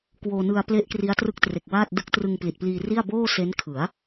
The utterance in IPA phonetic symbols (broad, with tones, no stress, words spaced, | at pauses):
kwoː˧nɯ˧a̯ple˦˥ʔ kri˦˥a̯trɯ˦˥k̚tre˨˩k̚ waː˥˩t̚ dɯ˦˥k̚trɯ˧ŋpli˨˩t̚pliː˧ ri˥˩a̯ boː˥˩se˦˥nkʰɯ˩˦a̯